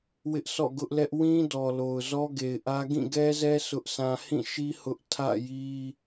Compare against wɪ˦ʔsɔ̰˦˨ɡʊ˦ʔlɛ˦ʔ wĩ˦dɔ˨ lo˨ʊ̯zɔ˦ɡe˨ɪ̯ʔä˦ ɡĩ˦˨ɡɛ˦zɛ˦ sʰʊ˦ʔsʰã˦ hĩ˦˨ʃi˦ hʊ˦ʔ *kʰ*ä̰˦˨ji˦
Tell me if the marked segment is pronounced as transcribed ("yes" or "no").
no